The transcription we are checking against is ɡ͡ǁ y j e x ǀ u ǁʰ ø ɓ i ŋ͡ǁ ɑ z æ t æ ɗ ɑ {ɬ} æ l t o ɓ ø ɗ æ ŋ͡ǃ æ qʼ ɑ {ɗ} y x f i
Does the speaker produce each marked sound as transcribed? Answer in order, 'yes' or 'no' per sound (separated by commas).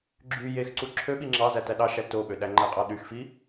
no, yes